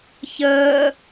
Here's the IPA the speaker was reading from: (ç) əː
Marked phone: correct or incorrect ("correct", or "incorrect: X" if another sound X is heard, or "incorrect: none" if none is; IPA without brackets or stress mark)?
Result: correct